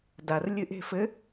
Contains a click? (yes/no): no